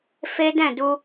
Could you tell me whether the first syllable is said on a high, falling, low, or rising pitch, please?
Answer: high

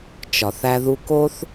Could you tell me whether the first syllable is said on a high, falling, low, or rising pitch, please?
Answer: low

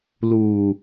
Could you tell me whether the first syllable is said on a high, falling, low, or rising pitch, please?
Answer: low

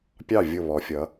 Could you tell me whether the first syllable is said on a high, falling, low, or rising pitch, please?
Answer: falling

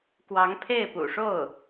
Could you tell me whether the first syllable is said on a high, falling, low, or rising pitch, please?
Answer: rising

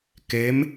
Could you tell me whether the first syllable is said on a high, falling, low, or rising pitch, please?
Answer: rising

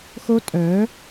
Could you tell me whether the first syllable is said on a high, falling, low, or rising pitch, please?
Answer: high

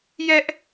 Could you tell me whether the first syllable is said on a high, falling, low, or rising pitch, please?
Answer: high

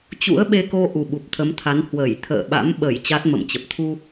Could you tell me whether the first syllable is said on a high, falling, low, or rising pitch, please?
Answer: rising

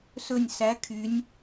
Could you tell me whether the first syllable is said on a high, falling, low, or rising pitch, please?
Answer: falling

